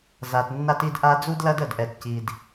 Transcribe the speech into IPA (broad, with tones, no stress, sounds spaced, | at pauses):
z a˨ t nː a˦ t i˦ d ʔ a˦ d͡z u˦ d l ɐ˦ d ə˨ d ʔ ɛ˨ t c i˨ d